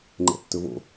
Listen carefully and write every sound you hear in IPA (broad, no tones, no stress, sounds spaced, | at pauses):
ŋ͡ǃ ɛ̰ tː ɵ v o̰